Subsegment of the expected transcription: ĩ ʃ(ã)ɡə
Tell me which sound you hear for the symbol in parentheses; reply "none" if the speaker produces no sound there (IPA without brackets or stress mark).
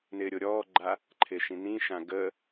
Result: ã